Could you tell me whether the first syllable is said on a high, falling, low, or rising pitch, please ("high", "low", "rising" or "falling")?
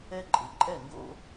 high